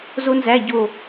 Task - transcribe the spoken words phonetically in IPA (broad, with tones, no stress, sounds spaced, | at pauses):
z o˥ n z æ˧˥˧ ɟ o˥˧